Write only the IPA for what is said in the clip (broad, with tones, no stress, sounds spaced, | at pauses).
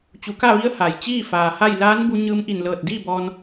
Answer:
t͡ɕ u˩˧ k a˥˨ ʋ i˧˥ ə̯ h a˩ j t͡ɕ iː˥˨ f aː˩ h a˥˨ j l aː˧˥ n b u˧ ɲ ɯː˧ m ʔ i˧˩ n l ɤː˧˩ t̚ d iː˥˨ b ɔː˧ n